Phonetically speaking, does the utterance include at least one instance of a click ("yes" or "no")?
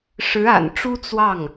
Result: no